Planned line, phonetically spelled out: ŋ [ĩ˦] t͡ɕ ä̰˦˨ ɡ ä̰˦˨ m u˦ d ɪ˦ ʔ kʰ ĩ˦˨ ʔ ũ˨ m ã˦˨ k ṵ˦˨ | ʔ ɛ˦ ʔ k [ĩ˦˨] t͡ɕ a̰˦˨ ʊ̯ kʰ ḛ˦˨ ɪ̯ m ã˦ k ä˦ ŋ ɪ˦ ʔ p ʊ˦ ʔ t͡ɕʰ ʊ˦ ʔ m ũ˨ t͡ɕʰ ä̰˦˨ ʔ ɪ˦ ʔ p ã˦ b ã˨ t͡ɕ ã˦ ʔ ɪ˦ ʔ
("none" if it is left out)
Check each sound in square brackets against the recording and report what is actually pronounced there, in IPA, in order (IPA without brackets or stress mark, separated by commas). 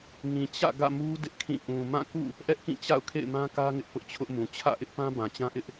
ĩ˨, ĩ˦˨